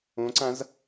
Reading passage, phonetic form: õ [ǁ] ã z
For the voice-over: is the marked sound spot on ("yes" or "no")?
no